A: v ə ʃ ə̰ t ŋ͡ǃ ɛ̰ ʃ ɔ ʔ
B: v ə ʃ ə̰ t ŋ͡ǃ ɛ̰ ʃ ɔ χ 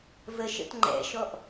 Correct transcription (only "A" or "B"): A